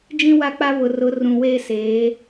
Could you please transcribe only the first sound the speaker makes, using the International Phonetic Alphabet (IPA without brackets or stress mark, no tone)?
d͡ʒ